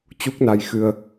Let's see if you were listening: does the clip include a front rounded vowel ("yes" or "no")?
no